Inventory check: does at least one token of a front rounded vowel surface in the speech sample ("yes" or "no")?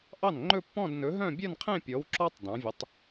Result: yes